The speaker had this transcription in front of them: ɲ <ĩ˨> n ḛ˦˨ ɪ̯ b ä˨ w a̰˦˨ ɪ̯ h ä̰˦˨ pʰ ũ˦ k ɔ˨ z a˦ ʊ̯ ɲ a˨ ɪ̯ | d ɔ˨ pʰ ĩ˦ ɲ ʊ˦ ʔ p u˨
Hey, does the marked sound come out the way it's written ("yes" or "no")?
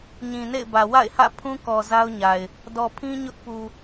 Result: yes